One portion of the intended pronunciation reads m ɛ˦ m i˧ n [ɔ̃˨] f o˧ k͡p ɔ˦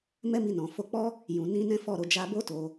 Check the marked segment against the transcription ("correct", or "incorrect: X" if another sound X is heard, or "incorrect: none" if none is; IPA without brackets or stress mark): correct